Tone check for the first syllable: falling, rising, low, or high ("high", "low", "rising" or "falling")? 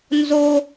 high